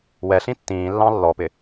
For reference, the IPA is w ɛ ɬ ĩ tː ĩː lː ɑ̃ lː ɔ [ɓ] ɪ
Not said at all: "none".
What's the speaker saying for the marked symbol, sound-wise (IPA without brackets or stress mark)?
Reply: p